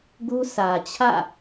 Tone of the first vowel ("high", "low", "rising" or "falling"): high